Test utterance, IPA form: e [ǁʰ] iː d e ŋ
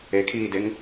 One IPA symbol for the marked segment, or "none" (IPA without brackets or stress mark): kʰ